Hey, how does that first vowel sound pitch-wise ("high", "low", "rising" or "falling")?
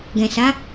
low